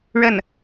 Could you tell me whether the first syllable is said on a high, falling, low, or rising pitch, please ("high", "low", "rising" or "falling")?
falling